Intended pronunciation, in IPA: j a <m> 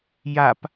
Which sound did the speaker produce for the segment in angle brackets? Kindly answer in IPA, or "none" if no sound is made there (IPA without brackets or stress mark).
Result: p